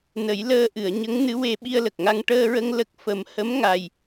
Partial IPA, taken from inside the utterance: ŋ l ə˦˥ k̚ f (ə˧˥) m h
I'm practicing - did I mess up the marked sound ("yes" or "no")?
yes